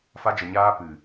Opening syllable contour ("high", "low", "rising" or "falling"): high